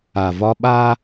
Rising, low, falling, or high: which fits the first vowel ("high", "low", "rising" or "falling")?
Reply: low